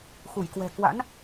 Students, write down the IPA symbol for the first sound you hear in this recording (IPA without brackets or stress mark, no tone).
x